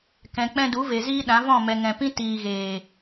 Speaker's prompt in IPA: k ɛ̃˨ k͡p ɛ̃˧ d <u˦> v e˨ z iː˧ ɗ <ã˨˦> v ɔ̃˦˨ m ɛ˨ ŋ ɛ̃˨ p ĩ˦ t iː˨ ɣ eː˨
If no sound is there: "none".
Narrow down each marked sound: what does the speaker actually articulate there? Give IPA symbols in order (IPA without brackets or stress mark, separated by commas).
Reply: u˨˦, ã˨˦